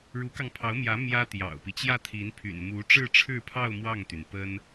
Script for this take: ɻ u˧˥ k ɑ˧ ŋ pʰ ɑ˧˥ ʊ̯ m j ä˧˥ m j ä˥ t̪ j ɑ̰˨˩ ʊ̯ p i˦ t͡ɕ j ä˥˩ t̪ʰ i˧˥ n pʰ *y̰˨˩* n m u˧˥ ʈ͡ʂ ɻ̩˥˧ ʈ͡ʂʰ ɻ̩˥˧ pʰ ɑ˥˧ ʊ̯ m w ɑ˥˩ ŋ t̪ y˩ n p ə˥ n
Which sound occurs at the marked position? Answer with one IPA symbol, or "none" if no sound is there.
y̰˨˩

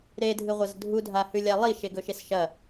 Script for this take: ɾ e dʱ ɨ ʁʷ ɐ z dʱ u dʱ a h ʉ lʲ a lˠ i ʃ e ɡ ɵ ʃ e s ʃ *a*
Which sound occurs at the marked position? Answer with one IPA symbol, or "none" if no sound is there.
ɐ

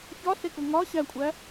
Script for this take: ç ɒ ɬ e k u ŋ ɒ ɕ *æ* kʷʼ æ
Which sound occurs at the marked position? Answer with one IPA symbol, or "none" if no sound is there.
æ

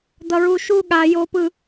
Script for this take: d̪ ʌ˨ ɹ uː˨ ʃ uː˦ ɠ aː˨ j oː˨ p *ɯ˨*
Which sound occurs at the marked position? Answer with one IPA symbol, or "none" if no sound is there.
ɯ˨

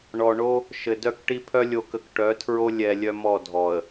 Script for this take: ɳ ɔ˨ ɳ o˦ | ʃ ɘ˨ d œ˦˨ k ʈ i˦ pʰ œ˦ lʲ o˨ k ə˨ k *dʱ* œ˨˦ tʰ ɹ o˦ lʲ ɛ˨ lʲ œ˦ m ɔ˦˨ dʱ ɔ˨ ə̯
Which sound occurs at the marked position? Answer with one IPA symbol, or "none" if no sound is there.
ʈ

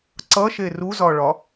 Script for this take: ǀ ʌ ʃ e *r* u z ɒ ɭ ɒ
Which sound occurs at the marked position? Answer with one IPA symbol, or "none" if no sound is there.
r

